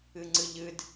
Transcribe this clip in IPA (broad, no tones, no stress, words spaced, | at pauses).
ɨŋ͡ǀɨʎɨd